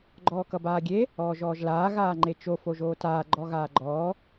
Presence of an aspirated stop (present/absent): absent